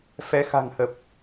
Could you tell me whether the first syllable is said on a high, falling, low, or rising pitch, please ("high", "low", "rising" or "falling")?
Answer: rising